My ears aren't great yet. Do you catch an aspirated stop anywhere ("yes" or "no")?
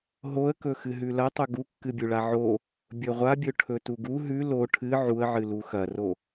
yes